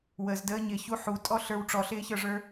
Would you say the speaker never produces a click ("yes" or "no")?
yes